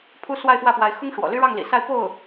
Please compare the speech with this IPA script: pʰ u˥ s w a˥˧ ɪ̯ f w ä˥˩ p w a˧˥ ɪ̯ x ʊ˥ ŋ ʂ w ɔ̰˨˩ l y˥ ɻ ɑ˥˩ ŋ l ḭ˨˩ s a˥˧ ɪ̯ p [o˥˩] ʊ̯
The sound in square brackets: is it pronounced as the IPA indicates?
yes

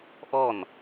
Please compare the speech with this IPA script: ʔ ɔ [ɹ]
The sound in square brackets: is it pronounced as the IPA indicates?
no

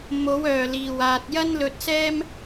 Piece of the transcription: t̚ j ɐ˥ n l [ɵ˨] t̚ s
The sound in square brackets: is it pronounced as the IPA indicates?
no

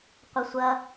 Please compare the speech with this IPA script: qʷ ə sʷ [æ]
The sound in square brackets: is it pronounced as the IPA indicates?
no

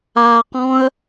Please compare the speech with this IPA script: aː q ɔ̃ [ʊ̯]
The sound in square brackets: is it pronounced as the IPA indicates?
no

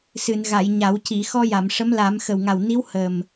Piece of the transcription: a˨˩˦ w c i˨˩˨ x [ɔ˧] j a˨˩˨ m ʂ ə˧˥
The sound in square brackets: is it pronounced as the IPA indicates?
yes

